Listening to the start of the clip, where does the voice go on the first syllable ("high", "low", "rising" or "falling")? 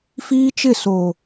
high